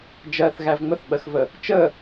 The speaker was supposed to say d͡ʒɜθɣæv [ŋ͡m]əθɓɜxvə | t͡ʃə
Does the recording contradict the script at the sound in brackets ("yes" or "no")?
no